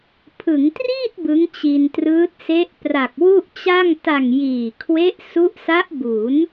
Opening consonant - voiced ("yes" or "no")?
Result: no